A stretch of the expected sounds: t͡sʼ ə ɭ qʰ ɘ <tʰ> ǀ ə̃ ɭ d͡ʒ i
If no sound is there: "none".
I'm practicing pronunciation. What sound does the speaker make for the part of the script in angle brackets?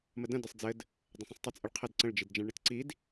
d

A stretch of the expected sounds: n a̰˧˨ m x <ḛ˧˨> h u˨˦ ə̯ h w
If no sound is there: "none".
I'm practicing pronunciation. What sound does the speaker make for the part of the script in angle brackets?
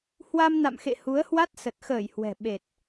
ḛ˧˨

